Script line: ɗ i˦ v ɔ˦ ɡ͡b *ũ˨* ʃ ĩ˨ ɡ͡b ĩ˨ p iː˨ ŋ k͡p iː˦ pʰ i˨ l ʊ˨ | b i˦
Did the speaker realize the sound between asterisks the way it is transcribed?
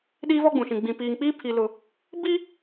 yes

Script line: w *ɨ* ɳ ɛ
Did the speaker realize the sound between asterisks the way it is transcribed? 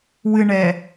yes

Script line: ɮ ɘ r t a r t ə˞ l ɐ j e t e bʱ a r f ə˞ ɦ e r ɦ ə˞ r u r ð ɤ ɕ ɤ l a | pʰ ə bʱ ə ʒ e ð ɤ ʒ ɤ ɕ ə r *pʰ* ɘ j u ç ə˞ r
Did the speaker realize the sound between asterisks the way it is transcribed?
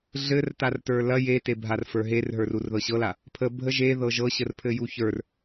yes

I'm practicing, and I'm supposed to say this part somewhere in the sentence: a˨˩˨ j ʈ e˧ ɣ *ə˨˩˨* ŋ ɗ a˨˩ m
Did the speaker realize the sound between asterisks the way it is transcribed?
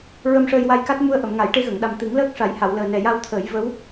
yes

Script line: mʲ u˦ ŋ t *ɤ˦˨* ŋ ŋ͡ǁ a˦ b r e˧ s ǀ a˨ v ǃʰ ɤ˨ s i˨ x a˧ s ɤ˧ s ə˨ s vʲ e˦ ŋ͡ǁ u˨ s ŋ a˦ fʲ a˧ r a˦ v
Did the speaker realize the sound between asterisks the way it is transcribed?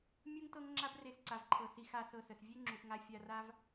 no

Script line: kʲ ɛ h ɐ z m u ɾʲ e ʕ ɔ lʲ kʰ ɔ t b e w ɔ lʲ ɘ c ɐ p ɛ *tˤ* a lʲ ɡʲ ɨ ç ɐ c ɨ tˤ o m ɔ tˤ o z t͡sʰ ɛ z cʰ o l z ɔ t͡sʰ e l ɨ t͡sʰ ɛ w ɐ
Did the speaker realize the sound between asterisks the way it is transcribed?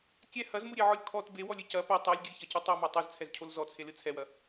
yes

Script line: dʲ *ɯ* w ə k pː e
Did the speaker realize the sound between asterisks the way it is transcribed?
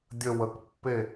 no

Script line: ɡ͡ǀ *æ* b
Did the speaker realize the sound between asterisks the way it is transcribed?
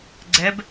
no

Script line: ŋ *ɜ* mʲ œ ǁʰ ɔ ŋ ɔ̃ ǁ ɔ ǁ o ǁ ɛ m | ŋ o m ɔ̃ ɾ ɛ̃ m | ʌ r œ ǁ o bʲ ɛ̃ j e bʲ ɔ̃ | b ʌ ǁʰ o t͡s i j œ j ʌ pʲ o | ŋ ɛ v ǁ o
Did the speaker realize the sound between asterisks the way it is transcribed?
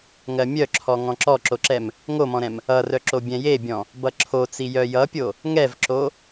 yes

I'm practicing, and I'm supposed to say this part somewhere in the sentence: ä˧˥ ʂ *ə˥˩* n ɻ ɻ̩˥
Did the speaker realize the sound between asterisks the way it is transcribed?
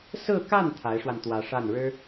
no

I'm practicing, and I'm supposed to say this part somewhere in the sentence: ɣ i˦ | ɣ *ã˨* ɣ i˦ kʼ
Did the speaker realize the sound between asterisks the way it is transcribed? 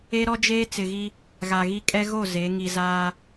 no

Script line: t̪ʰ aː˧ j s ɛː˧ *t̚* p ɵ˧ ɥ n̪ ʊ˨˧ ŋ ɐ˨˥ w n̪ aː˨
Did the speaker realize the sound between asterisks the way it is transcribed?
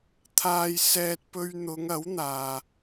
yes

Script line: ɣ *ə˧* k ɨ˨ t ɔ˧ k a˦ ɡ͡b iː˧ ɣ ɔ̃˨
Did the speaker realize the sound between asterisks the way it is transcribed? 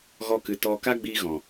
no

